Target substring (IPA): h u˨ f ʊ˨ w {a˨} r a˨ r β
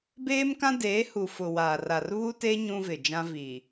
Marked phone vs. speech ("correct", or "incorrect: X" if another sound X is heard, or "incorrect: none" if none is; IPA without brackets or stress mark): incorrect: aː˨